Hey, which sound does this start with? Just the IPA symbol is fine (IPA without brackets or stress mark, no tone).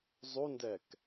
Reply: zˤ